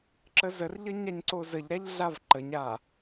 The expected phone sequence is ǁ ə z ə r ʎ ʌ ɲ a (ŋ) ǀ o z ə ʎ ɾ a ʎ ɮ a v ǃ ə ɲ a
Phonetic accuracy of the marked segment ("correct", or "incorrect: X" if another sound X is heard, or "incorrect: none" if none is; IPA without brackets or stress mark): incorrect: ɲ